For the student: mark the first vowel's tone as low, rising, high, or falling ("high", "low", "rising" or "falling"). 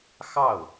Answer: falling